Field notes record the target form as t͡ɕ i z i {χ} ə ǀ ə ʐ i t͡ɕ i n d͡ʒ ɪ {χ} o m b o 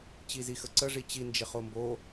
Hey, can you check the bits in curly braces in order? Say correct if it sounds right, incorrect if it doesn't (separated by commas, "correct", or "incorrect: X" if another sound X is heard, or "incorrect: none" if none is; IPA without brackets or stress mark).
incorrect: x, correct